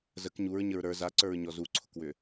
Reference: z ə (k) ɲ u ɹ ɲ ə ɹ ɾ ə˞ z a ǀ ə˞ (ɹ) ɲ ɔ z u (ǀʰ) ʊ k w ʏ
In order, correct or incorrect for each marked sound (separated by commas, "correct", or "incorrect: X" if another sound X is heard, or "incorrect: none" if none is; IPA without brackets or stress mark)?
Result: correct, correct, correct